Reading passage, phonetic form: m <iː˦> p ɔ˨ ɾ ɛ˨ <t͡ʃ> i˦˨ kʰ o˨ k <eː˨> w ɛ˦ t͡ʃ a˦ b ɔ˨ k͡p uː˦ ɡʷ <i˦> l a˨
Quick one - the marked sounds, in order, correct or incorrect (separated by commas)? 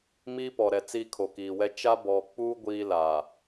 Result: correct, incorrect, incorrect, incorrect